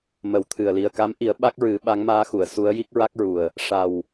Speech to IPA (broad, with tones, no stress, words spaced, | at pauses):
mə˨˩˦wt̪ʰɨ˨˩ə̯ li˨˩ə̯ka˧˥mʔi˨˩˦ə̯ ɓa˦˥k̚ɹɨ˨˩˦ ɓa˧˥ŋmaː˧˥xu˨˩˨ə̯ su˧˥ə̯ji˦˥k̚ɹa˦˥k̚ɹu˨˩ə̯ | ʂa˨˩w